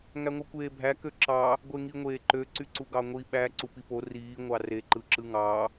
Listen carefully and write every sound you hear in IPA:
ŋ æ ŋʷ ɯ kʷ eː bʱ æ k ø ǁ ɑ | ɡʷ e ŋ i ŋʷ eː ǃ ø ǀ y ǀ u ɡ ɑ ŋʷ i ɓ æ ǀ u p i p o r iː ŋʷ ɑ r e ǃ ɯ ǁ ɯ ŋ ɑ

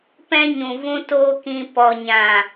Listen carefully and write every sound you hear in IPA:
p ɛ̃˦ ɲ ũ˨ v ũ˧ t oː˧ k ĩ˧ p ɔ˨ ɲ ã˨

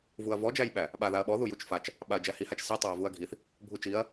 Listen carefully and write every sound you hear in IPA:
v u ɐ̯ v ɔ d͡ʒ æ j ɓ æ | ɓ a ð a ɐ̯ ɓ ɔ ð u j u t͡ʃ f a t͡ʃ | ɓ a ɐ̯ d͡ʒ æ h i h a t͡ʃ s i tˤ æ ɐ̯ v u ɐ̯ ɡʱ i θ | bʱ u t͡ʃ i ɐ̯

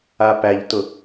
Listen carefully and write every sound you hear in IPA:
a p æ ʎ t ʊ

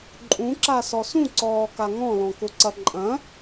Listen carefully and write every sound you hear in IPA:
ǃʼ ũ ǁ a s ɔ s ũ ǀ ɔː k a ŋ ɔ̃ l ɔ̃ k ʊ ǀ ɐ ǃʼ ɐ̃

